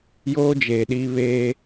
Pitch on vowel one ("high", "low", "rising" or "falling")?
high